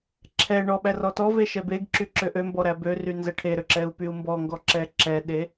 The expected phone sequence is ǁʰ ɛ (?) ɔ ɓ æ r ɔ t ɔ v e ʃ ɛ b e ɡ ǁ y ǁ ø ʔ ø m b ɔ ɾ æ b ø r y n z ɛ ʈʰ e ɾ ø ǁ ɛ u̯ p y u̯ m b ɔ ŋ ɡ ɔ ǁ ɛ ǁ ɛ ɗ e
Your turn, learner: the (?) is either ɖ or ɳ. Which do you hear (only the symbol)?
ɳ